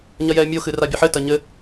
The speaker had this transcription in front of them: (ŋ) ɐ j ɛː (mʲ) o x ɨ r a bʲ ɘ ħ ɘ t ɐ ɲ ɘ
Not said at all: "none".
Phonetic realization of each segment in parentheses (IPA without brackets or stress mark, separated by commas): ɲ, mʲ